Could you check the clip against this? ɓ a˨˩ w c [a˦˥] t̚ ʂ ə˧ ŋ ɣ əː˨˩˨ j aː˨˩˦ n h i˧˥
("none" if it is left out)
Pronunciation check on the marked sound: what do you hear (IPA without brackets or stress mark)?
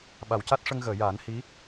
a˦˥